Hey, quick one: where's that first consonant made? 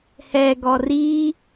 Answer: throat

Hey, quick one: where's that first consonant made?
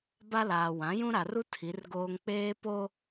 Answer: lips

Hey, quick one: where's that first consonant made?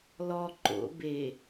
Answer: tongue tip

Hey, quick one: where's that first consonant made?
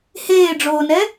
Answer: throat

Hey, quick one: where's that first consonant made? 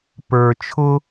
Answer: lips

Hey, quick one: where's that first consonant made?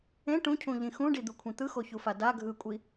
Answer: retroflex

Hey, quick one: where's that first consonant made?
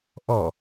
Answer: throat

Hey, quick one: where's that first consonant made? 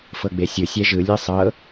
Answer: lips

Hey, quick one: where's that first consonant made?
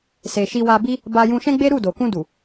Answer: tongue tip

